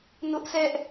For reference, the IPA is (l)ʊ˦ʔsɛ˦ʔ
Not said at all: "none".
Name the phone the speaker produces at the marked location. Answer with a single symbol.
n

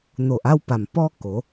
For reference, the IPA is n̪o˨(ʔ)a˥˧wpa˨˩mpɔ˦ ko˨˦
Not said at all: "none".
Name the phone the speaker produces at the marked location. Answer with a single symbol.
ʔ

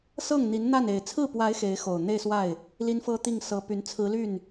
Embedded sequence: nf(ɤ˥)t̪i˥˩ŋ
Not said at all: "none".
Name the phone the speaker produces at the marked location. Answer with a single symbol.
ɤ˥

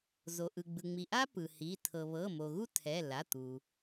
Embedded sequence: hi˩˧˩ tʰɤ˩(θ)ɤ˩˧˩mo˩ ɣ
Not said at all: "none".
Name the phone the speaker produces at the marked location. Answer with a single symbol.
β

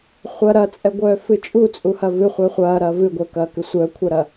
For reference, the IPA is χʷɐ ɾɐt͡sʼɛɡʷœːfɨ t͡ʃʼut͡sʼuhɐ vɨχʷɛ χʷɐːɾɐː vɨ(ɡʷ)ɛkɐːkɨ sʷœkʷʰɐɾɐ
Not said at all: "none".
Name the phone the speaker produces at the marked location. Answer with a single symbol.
ɡʷ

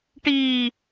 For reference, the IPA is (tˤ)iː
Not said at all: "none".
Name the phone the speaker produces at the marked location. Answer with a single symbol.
ʈ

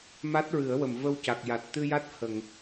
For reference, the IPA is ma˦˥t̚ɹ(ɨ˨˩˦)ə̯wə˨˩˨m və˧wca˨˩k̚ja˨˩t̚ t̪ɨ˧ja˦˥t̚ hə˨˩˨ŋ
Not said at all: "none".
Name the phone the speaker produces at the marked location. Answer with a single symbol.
ɨ˨˩˦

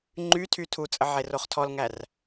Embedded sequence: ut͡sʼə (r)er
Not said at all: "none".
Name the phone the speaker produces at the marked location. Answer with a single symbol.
ʕ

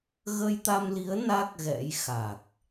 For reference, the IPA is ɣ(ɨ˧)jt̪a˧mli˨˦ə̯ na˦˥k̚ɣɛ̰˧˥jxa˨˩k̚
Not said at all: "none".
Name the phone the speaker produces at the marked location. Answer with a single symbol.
ə˧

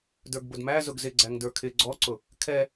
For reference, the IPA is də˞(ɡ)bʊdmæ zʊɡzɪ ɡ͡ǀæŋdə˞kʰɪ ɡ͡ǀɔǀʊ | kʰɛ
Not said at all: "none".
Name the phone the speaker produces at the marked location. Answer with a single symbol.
ɡ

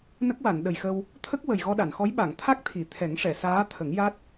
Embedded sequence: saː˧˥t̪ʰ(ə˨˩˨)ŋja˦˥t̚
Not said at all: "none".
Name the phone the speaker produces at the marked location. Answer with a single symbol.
ə˨˩˦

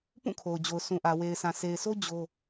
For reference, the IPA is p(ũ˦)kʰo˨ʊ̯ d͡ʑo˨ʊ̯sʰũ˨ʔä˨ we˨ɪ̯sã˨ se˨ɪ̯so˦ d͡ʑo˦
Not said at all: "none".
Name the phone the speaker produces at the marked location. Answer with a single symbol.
ũ˦˨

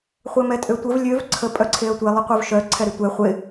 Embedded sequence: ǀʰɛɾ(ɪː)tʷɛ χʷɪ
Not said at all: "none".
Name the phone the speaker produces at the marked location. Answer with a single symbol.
ɪ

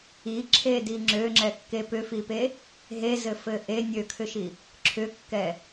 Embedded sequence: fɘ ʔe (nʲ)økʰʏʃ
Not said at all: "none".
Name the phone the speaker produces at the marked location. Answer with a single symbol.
nʲ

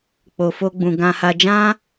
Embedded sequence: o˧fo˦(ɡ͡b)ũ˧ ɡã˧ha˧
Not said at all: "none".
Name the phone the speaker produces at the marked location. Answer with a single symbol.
ɡ͡b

